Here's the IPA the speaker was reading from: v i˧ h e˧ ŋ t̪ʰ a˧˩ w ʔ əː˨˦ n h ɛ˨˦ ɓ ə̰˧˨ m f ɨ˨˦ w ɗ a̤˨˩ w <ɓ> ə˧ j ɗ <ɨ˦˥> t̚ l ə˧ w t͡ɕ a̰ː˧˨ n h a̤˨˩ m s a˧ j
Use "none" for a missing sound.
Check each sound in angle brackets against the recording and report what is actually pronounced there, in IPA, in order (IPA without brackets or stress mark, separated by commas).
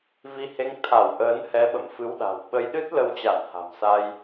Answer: ɓ, ɨ˦˥